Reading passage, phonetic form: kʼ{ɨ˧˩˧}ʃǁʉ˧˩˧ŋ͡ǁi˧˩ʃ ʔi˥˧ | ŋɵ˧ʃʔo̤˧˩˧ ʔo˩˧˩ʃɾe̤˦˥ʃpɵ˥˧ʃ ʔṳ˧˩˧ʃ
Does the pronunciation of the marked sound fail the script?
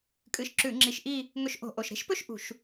yes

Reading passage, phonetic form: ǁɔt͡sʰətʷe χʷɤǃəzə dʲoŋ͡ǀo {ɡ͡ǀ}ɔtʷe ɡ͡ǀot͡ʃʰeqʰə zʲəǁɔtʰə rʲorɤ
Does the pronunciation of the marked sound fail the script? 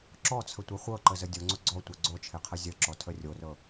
no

